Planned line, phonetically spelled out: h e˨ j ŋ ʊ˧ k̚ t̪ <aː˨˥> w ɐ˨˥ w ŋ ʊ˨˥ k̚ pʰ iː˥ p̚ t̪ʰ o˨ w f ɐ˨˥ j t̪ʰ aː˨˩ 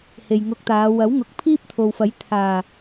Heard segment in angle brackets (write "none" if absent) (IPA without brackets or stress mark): aː˨˧